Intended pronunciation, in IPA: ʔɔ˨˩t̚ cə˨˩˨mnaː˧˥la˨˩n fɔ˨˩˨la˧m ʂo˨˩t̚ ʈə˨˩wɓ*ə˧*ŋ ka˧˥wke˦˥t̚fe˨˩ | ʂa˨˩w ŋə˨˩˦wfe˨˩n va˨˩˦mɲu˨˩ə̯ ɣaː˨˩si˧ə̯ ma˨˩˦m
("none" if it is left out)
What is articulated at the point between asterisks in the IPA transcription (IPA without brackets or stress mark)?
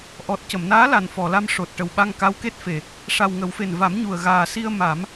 a˧